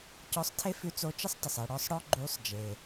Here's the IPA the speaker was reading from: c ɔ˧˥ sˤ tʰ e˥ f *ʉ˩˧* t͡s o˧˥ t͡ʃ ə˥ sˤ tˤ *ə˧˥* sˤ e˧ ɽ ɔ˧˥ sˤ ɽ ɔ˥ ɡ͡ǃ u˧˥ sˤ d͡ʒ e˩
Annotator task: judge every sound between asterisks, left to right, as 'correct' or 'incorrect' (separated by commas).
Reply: incorrect, incorrect